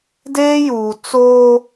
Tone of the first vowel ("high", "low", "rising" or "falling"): high